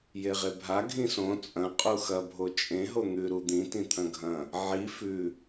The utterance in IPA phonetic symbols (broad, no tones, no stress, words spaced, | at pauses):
jeʁebʱa ɡʱĩsõ t͡sʼɐ̃ qʼuxɐ bʱot͡ʃʼẽ ɦon̪ʉ ɾud̪ĩ tĩt̪ʰɐ̃ɡʱɐ̃ | ʕi fʉ